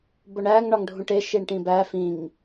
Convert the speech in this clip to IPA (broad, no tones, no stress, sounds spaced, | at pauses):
b o ɳ æː ŋ ɳ ɒ ŋ ɖʱ ũ ʈ e ʃ i ɳ ʈ ĩ b æ f ĩ ŋ